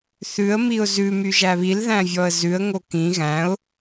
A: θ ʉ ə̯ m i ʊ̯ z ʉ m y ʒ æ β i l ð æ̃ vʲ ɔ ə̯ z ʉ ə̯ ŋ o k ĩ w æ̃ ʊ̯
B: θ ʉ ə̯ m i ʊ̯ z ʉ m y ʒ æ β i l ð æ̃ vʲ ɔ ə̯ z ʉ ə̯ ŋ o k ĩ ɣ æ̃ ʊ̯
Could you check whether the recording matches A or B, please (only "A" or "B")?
B